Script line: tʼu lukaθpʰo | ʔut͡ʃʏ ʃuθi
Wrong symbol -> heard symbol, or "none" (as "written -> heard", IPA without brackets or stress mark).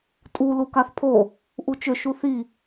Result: none